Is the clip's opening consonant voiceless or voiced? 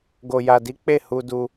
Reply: voiced